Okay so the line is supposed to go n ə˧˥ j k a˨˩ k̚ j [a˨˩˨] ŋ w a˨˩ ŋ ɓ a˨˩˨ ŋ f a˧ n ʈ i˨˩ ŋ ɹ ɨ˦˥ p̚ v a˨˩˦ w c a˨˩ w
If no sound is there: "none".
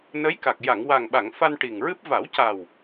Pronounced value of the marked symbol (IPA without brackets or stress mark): a˨˩˨